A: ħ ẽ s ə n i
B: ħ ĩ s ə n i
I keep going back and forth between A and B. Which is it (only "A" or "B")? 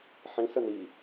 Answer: B